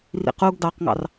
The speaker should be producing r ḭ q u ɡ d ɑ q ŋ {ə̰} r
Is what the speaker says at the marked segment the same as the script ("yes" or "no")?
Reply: no